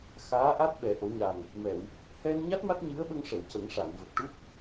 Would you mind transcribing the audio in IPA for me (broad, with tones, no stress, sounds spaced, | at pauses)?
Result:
x aː˧˥ ʔ a˦˥ t̚ ɓ ɛ˨˩˦ ʔ o˨˩˦ ɲ a˨˩ ŋ | m ɛ˨˩˨ w | h ɛ˧ n ɲ a˦˥ t̚ m a˦˥ t̚ ɲ ɨ˧˥ ə̯ ɓ ə˧ ŋ ʂ ə˨˩˨ w c ə˨˩˦ ŋ ʂ a˨˩˨ n v ə˨˩ k̚ ʈ u˦˥ p̚